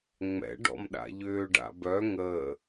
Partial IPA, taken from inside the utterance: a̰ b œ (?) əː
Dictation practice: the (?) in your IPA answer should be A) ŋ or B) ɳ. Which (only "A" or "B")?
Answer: A